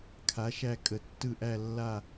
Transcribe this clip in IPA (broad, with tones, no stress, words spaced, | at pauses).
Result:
kʰa˩˥ʃæ˦˨ kʼə˩˥tːɯ˦˨ ʔæ˦˨lːa˦˨